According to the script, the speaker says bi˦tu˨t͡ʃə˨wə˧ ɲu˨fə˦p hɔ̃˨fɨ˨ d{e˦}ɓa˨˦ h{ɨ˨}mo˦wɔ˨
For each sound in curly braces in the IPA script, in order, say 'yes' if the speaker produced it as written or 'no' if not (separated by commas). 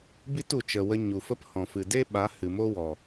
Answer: yes, yes